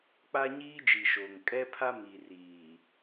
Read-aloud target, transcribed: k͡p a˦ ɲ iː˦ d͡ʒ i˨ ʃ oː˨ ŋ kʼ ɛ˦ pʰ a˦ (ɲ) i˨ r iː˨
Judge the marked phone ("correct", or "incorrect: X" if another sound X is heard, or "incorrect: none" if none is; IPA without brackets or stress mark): incorrect: m